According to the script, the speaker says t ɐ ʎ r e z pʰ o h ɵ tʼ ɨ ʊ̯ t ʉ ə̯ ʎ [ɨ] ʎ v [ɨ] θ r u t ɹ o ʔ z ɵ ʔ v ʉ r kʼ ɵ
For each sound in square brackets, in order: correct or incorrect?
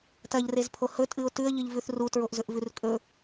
correct, incorrect

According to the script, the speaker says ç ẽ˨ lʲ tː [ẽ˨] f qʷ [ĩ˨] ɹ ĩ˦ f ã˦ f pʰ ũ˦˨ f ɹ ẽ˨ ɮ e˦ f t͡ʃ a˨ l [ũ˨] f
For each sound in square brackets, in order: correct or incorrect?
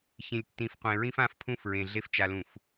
incorrect, incorrect, correct

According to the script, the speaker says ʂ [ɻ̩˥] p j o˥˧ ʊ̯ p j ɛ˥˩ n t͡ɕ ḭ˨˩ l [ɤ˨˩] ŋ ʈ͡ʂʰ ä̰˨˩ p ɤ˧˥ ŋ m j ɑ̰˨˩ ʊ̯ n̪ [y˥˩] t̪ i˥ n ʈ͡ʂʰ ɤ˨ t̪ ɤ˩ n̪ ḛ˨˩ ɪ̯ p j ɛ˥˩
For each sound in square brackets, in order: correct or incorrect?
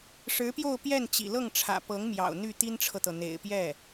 incorrect, incorrect, correct

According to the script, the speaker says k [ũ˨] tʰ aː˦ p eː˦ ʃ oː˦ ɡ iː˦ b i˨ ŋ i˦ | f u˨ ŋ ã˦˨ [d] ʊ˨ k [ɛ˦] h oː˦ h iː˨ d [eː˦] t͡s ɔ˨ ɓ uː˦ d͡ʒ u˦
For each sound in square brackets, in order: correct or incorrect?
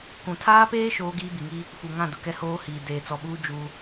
correct, correct, correct, incorrect

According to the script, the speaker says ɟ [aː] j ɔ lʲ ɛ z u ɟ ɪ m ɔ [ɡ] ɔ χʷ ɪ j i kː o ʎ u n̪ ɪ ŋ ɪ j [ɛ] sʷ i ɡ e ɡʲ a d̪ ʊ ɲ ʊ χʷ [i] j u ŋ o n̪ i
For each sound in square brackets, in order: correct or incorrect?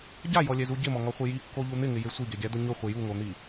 incorrect, incorrect, incorrect, incorrect

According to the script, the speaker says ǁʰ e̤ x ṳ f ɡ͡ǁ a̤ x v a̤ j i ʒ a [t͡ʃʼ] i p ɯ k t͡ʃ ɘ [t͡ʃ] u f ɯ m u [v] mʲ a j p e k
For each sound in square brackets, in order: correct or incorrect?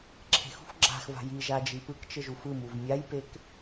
incorrect, incorrect, correct

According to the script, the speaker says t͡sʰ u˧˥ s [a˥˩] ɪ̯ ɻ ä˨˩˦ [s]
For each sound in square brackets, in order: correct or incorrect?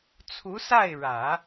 correct, incorrect

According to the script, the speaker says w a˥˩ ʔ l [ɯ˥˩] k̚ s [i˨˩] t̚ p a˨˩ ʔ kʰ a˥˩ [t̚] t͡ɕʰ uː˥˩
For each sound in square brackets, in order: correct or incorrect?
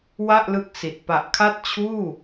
incorrect, correct, correct

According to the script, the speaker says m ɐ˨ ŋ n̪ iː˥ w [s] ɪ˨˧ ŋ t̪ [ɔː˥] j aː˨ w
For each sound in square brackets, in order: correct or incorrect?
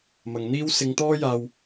correct, correct

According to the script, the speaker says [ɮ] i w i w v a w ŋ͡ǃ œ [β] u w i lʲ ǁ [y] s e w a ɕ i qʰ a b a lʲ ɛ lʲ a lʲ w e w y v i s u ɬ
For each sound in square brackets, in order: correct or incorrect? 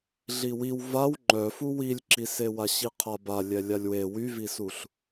correct, incorrect, incorrect

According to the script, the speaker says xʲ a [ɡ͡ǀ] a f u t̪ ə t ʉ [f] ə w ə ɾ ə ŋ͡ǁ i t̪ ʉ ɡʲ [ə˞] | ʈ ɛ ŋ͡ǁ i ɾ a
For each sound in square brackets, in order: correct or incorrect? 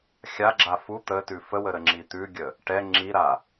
incorrect, correct, incorrect

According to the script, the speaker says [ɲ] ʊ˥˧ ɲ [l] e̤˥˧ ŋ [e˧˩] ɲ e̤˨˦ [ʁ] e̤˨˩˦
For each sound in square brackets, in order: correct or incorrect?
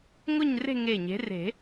incorrect, incorrect, correct, incorrect

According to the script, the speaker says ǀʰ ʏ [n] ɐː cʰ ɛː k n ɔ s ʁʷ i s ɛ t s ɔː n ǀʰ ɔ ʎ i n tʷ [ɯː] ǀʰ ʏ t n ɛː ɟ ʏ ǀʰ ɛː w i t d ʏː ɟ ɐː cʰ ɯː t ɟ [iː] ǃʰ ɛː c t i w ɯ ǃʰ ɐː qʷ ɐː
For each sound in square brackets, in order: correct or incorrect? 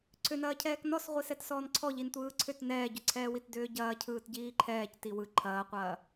correct, correct, correct

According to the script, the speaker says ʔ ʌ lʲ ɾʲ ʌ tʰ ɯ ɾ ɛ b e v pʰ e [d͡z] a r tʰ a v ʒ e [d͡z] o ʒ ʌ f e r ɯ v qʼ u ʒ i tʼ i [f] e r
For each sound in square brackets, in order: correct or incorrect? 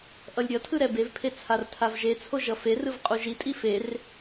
incorrect, incorrect, correct

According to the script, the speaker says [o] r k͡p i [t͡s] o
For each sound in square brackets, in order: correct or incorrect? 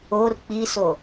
correct, incorrect

